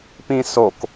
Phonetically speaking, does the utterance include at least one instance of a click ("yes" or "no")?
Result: no